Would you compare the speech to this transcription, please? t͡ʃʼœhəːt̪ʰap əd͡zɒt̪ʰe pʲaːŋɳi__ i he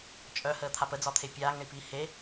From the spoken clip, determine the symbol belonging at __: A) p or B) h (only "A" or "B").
A